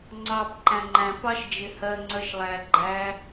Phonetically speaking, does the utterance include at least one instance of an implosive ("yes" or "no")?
no